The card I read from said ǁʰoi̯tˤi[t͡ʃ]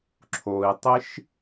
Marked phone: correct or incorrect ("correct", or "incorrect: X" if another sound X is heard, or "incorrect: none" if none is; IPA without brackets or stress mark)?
incorrect: ʃ